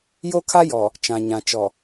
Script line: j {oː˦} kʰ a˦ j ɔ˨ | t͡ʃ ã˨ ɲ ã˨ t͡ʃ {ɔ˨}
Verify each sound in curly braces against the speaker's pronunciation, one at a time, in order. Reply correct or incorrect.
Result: incorrect, correct

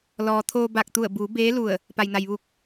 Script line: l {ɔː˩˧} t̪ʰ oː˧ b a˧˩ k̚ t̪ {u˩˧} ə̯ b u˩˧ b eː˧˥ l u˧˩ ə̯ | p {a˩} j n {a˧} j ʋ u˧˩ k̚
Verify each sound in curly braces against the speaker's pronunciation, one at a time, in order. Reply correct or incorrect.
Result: incorrect, incorrect, correct, incorrect

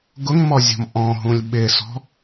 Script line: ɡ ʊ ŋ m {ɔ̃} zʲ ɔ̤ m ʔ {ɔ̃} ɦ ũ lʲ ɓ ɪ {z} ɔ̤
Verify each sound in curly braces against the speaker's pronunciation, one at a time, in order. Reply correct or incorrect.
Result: incorrect, correct, incorrect

